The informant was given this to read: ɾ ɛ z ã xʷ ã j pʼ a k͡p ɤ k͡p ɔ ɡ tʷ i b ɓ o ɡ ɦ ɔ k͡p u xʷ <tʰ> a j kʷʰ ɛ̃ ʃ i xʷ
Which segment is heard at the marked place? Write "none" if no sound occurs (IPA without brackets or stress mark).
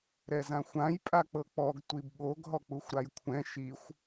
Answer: ɾ